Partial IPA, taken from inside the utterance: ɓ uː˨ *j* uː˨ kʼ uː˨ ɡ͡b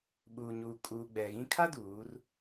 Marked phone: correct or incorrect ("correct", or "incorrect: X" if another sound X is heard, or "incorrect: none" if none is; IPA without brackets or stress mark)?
incorrect: ɲ